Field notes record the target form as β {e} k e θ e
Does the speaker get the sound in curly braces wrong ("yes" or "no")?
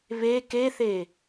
no